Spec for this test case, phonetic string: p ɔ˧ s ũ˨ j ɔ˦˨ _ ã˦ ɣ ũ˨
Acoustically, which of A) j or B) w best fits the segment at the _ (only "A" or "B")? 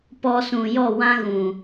B